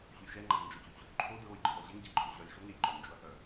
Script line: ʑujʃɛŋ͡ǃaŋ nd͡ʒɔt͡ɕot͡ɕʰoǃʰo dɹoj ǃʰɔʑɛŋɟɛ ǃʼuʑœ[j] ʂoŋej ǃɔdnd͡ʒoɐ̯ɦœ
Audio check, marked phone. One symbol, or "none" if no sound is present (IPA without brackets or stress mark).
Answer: j